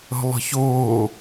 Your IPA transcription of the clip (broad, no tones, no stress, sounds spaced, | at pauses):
ə̤ lˠ ə̤ ç ʊː